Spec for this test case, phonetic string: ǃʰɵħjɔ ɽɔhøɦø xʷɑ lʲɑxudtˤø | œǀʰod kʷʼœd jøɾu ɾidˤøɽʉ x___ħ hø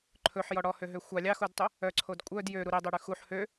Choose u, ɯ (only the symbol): u